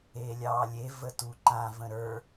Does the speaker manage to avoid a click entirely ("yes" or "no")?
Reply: no